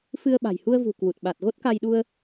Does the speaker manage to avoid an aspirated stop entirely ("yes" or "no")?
yes